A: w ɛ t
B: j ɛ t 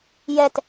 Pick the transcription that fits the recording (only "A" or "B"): B